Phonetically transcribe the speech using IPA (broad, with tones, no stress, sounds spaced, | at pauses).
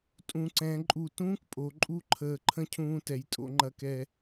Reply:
tʼ ũ˩˧ ǀ ɛ̃˩˧ ǃʼ u˧˩ t ũː˥ k pʼ o˩˧ ǃʼ u˥˧ ǃʰ əː˧˩ ǃʰ ə̃˥˧ cʰ ũː˧ t ɛ˩˧ j tʼ o̰˧ ŋ͡ǃ ɐ˧ k ɛ˧